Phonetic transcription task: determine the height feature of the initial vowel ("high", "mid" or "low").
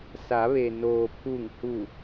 low